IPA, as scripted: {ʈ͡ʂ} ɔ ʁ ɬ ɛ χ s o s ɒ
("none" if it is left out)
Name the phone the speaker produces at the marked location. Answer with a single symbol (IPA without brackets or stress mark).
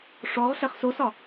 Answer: ʂ